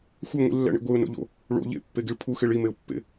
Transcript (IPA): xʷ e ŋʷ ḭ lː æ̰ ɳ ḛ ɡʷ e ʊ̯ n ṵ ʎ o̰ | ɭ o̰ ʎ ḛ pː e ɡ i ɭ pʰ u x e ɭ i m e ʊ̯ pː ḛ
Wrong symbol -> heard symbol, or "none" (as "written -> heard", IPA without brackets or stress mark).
ṵ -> o̰